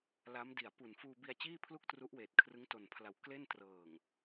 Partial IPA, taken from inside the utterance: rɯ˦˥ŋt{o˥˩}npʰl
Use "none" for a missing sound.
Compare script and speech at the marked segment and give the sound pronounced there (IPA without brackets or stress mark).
o˨˩